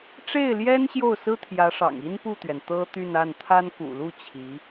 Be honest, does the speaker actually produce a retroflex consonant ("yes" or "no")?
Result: yes